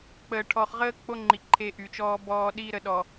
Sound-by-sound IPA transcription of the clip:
k͡p əː˨ ʈʰ ɔ˨ χ ʁ əː˦ k͡p o˦ ŋ͡ǃ i˨ ǃʰ e˦ ʔ y˨ t͡ʃ ɔː˦ b ɔː˦ ɗ iː˦ ɾ ə˨ ɗ ɔ˨

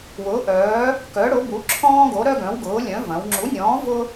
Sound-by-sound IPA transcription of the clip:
w ʊː˨˥ ʔ œː˨˥ | k œ˨˥ ɽ ʊ˨˥ b u˨˥ ǁʰ ɔ̃ː˥ ɡ o˨˥ ɾ œ˥ ɡ œ̃˨˥ w ɡ ʊː˨˥ lʲ œ̃˨˥ v ɐ̃˩˧ w ŋ͡ǁ u˨˥ nʲ ɔ̃ː˨˥ v ʊ˥

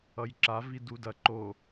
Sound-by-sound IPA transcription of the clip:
ʌ j ǁ a v i d u d ɐ ǃ o

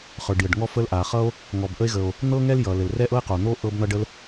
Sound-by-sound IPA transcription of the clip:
χ ə˞˩ ɖ j ə˩ ɖ ŋ ɔ˥ f ə˥ l ʔ a˩ χ ʌ˥ o̯ | ŋ ɔ˩ b ʔ ə˥ e̯ ɣ ə˩ o̯ | n̪ ɤ˥ ŋ ɛ˥ l j ʌ˩ l ɘ˩ l r ɛ˥ ʔ ɤ˥ e̯ q o˩ n̪ o˥ ʔ ɤ˥ b n̪ ʌ˥ ɖ ə˥ l

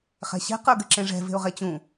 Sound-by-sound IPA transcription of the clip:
χ ɛ̤ ɕ ɛ̤ q ə˞ ɡ ɘ ǁ ẽ ʐ ɛ̤ v e̤ ʊ̯ ʁ e t͡ɕ ũ

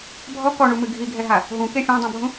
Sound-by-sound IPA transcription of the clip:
bʱ ɔ k ɔ ɳ u m ɨ ɡʱ i ɡʱ ɛ ɦ a | ɦ ũ k e fʲ ã dˤ ũ bʱ ũ

